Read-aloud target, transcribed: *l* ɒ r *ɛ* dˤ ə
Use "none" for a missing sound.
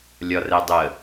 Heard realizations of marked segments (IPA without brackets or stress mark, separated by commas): lʲ, ɛ